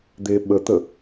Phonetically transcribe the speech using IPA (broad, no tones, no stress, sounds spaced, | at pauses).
d̪ e ɓ ə t̪ ə